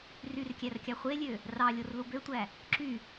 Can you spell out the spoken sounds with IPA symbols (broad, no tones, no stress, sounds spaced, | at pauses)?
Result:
r y r kʲ æ r kʲ ɑ χʷ e lʲ ø | r ɑ lʲ o r l u b ø tʷ æ | ǁ y